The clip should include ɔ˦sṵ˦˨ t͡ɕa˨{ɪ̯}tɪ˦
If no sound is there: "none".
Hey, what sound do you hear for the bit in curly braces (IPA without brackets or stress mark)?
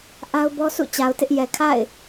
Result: ʊ̯